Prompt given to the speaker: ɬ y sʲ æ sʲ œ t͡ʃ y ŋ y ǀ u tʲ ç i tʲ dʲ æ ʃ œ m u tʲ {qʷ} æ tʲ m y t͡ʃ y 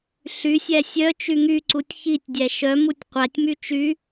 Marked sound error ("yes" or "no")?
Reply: no